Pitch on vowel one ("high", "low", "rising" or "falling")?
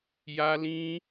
high